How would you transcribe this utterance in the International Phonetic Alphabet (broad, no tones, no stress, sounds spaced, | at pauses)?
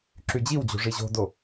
ǁ y d͡ʑ i w d͡ʑ o̤ ʐ i ʑ o̤ d o